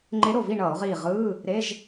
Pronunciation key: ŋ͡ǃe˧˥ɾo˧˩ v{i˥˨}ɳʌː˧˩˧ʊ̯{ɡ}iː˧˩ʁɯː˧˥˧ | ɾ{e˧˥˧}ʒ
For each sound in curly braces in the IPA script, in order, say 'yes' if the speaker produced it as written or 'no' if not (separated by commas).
yes, no, yes